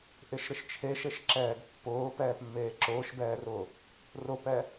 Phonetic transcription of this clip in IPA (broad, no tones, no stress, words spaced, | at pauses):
ʔɪʃɾɪʃ t͡ʃʰeʃeʃǁɛːɡ pːʊːpɛːpmːeː ǁʊːʃbɛːrʊː | rʊpɛ